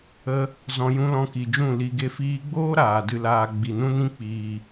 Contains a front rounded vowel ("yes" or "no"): no